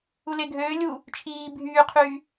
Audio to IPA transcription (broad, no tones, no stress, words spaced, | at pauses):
uleɡʱøː lʲu | t͡ʃʰiː bʱyːqʰyː